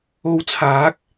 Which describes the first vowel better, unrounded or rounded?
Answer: rounded